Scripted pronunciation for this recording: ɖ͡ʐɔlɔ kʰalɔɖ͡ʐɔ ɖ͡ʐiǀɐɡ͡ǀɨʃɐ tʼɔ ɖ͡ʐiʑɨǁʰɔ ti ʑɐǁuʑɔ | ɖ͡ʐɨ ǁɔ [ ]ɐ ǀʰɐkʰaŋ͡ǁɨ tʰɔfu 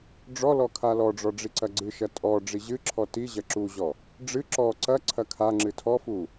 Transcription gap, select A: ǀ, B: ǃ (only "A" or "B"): A